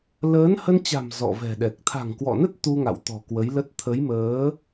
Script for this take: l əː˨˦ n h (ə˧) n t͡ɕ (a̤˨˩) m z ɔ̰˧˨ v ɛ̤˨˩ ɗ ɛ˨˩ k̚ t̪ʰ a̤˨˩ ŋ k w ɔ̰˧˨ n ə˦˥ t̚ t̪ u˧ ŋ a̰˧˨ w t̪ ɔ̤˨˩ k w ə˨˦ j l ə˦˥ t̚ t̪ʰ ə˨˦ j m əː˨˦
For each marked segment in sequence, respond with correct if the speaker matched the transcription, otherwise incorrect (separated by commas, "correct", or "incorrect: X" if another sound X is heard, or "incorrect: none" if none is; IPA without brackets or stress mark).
correct, correct